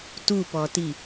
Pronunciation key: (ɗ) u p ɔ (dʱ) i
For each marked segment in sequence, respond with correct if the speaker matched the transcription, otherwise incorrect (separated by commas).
incorrect, incorrect